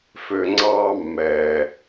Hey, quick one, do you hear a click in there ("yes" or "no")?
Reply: yes